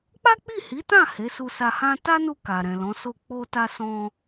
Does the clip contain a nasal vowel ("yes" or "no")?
yes